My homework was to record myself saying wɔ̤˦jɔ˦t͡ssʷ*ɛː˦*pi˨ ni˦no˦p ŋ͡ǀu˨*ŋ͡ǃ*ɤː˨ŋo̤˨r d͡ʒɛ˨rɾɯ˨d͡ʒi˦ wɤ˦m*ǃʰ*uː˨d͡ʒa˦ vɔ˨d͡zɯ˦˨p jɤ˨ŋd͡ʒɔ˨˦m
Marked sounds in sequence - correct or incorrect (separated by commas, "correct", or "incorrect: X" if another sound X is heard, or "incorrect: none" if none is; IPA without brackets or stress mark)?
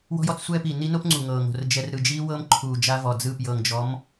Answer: correct, incorrect: ŋ, correct